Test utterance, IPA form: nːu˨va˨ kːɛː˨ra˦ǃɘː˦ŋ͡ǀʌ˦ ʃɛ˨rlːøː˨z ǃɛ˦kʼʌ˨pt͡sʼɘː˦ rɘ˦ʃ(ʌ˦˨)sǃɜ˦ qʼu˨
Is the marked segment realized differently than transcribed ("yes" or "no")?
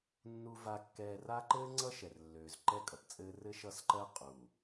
no